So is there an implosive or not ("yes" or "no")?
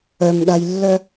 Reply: yes